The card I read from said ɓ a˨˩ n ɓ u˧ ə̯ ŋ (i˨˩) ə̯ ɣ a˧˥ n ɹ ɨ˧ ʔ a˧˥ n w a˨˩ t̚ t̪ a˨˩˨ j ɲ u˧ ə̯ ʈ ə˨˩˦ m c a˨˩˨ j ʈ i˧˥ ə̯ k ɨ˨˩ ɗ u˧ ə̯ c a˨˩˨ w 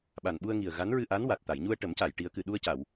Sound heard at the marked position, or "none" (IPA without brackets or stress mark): i˨˩